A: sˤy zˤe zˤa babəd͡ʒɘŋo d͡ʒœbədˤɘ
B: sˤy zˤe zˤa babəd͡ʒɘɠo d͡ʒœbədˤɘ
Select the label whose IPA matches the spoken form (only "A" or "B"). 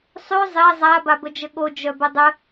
B